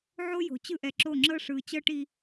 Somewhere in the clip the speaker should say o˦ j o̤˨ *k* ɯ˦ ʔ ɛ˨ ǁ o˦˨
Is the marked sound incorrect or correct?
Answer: incorrect: t͡ɕ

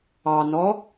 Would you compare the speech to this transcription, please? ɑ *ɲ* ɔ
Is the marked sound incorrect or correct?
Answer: incorrect: n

